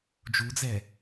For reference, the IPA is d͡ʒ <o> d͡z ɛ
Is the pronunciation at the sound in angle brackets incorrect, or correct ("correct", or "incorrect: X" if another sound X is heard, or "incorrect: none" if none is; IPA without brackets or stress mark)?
incorrect: u